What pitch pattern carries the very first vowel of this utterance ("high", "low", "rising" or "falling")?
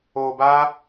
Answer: low